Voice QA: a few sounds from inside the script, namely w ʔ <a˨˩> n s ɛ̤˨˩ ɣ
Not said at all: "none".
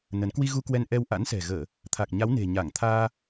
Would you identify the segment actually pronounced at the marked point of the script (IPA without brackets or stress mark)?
a̰˧˥